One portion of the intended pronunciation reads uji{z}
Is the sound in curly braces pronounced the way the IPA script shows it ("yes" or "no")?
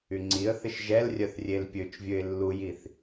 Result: no